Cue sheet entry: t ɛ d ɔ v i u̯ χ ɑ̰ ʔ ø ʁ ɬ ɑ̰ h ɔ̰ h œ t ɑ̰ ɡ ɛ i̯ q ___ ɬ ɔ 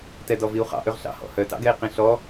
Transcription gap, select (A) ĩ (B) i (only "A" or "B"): A